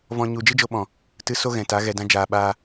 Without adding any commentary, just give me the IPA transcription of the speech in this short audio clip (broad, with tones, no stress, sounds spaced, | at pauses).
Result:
v ɔ̃˧ ɲ u˨ d͡ʒ ɨ˦ d͡ʒ o˧ ɓ ɔ̃˨ | t ɨ˧ s o˦ ɣ ɛ̃˨ t a˨˦ ɣ ɛ˨ d ã˦ d͡ʒ aː˧ ɓ aː˦